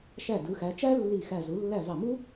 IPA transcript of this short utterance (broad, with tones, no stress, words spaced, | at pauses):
ʃæ˧˩ dɯ˩˧xæ˩˧t͡ʃæ˥ lːi˧˩xæ˧˩ zu˩˧lːæ˧˩ vɑ˧˩mu˥